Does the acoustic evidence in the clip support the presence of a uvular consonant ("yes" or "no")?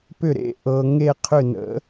yes